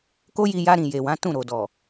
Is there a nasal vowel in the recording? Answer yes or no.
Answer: yes